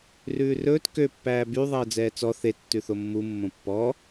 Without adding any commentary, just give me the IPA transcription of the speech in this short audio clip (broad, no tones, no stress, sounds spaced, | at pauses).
r ʉː r ɵː t k ø pː æː b y ðˤ ɛ ə̯ d͡z ɛː t͡s ɔ θ e tː ʉ θ o mː u mː õ pː ɔ